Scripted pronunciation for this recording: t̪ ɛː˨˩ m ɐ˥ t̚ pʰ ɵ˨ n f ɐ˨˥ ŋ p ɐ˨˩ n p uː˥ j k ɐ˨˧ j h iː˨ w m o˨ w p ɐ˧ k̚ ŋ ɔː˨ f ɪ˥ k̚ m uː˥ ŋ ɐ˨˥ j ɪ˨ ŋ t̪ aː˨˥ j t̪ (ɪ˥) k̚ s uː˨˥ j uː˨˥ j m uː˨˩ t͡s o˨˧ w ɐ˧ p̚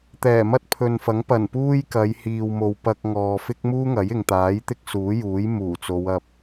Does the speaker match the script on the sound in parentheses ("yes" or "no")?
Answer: yes